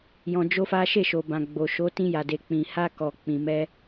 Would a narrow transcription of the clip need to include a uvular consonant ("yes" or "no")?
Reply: no